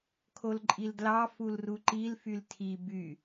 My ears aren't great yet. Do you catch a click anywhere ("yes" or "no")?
yes